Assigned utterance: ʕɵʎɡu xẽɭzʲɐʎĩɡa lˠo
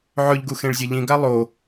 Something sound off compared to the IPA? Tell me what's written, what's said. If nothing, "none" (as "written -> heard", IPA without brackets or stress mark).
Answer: none